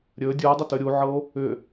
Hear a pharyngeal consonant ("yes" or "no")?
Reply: yes